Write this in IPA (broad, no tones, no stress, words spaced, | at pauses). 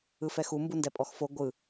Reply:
ɯfɛxu mbundɛpʼɔxfo ɡʷɯ